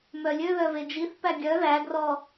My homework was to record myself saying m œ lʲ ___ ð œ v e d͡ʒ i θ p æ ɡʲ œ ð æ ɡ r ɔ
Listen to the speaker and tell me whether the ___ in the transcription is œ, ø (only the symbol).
ø